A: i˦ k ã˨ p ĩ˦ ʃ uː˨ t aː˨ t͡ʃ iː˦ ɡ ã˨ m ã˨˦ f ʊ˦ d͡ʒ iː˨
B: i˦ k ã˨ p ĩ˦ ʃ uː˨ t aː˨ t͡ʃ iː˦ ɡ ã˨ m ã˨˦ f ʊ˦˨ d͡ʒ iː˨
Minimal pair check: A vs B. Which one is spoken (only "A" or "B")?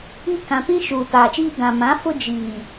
A